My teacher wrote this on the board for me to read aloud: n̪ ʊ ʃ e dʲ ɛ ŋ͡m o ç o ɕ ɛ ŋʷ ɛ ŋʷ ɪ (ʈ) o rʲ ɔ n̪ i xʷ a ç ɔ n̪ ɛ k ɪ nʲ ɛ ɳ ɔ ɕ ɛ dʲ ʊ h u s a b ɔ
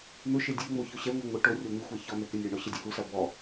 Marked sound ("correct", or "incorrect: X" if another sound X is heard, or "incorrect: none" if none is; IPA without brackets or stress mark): correct